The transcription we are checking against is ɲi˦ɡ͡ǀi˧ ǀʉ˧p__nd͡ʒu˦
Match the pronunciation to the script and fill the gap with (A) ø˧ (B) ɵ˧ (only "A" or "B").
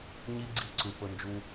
B